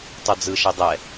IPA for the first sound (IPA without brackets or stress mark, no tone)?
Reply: tˤ